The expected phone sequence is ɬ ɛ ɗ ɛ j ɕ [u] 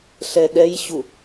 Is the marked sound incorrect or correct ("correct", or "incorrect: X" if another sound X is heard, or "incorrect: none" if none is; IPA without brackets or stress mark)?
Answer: correct